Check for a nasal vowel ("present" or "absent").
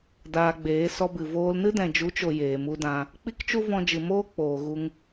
present